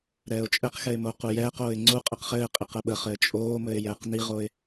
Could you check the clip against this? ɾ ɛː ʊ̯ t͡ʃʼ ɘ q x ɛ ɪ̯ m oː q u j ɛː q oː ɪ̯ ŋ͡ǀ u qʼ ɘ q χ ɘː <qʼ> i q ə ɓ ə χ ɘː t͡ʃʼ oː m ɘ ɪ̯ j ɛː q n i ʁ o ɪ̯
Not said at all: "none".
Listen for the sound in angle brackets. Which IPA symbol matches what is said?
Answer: qʼ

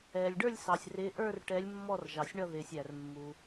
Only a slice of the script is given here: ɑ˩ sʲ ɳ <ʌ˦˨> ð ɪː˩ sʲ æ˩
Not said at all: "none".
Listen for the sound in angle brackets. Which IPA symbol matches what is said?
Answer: ʌ˦˨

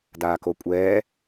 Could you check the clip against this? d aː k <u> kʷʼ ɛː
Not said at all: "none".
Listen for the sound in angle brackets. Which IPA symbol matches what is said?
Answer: o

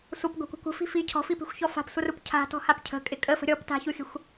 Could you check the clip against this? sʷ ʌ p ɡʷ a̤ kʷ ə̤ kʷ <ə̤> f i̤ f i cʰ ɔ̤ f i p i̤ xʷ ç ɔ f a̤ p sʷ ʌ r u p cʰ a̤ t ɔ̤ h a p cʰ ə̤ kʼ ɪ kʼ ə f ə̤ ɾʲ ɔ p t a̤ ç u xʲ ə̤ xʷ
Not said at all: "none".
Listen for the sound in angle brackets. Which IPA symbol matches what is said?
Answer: ə̤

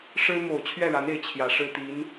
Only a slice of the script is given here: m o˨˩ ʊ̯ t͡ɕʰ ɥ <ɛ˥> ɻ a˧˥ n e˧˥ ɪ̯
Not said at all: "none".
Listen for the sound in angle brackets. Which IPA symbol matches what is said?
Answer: ɛ˥˩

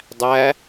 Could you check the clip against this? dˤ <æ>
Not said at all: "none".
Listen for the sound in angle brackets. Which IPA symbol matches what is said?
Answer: æ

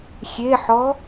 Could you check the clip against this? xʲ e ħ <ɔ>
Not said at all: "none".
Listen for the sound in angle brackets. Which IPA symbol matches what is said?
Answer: ɔ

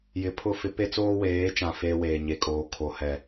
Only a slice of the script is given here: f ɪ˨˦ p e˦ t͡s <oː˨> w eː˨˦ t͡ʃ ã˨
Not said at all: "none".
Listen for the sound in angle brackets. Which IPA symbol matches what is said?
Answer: oː˦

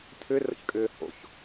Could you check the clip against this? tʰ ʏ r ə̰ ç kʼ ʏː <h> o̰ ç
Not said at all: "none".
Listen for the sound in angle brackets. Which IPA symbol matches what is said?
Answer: h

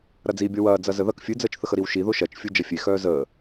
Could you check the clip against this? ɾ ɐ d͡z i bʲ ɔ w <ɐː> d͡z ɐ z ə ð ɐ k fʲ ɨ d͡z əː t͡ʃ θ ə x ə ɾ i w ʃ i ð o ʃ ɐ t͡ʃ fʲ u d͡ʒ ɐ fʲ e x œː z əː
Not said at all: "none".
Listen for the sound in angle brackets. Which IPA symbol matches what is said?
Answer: ɐː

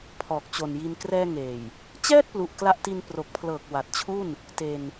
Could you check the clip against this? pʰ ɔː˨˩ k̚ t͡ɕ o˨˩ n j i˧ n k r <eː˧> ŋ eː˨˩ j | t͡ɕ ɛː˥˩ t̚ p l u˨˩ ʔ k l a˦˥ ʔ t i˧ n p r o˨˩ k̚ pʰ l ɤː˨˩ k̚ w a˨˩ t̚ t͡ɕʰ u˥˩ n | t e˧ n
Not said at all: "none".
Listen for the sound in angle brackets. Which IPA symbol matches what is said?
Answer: ɛː˧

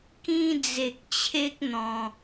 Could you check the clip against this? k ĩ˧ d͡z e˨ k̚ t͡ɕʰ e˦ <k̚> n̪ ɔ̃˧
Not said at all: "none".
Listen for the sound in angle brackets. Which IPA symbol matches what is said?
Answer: k̚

